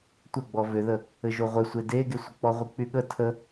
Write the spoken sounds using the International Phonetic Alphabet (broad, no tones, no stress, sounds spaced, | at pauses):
tʷ ə ɡ͡b ɔ v ʏ ð ə | ɘ ʒ o ʁʷ ɘ sʷ e d e ɡ e sʷ ə k͡p ɔ ʁʷ i k͡p y ɠ ə tʰ ə